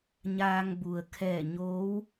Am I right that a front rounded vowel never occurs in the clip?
yes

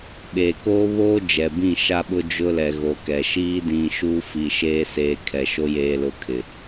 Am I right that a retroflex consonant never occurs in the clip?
yes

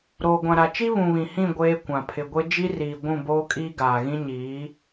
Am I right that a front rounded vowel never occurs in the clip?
yes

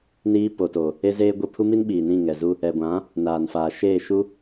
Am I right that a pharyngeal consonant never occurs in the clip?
yes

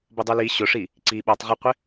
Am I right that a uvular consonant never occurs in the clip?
no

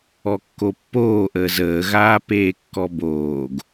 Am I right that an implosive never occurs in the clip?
yes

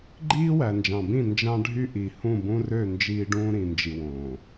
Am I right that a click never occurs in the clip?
no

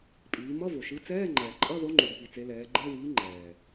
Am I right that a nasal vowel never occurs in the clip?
yes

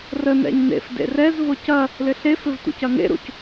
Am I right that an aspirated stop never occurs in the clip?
yes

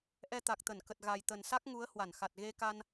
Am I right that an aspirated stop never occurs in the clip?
yes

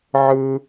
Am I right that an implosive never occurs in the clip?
yes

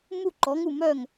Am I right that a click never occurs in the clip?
no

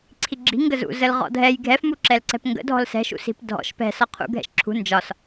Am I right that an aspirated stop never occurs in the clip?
no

